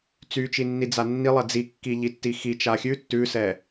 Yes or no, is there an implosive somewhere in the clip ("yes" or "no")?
no